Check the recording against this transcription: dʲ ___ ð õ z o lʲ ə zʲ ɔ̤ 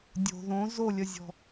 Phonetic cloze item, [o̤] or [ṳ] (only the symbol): o̤